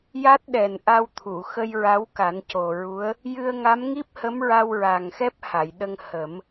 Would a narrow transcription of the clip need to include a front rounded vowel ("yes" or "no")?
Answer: no